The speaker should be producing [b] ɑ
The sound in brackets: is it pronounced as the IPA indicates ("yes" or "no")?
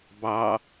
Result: yes